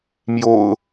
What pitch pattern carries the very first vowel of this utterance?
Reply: low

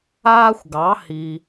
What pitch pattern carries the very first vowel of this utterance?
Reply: high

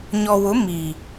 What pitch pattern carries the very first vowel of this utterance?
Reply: low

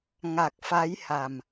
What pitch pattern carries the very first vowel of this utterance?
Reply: low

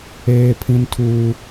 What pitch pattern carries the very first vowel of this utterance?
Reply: high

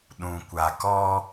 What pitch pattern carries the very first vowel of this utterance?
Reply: low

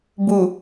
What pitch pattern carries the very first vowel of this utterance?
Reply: low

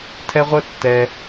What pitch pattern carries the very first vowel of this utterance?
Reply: high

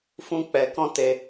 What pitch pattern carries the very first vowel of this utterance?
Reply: high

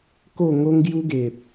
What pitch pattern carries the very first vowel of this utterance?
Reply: falling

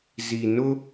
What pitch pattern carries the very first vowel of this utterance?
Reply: low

